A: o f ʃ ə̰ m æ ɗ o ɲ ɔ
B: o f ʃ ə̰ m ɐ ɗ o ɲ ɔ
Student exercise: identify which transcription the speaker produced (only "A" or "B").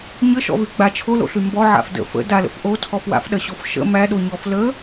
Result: A